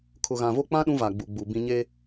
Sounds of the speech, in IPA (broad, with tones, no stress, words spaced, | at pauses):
kʰʊ˨ɣã˨vo˦k͡pã˦ ɗũ˦ va˨ɡ͡bu˨ɡ͡bu˨ bĩ˦ ɲeː˦